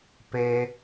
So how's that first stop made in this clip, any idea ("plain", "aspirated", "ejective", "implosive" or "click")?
plain